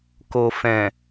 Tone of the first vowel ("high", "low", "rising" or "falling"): low